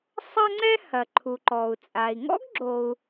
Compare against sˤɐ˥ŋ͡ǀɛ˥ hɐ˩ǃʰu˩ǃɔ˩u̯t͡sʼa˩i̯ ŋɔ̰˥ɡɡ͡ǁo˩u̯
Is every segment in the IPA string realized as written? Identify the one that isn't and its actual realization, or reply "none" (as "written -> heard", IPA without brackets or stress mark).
none